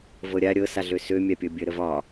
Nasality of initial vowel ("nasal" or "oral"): oral